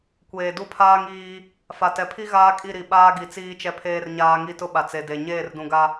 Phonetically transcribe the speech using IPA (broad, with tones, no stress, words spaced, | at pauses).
kʷeː˨du˦ pʰaː˦ŋiː˦ | fa˨tɛ˨pʰi˦ ɣaː˦kʼi˦˨ɾi˨ ɓaː˦ɡi˨ t͡siː˦t͡ʃɛ˦pʰeː˦rɲaː˦ ŋi˦tʊ˦ɓa˨ t͡se˨de˨ ɲeː˦˨rdũ˨ɡa˦